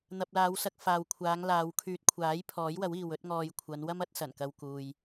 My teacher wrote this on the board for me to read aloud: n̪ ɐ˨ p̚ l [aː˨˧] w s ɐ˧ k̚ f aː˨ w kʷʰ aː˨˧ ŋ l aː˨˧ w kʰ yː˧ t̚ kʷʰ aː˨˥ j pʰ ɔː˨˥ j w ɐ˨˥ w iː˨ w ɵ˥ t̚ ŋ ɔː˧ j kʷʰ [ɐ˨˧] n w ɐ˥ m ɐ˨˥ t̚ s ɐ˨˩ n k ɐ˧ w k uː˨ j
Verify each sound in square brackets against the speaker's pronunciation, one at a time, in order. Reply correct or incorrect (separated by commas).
correct, correct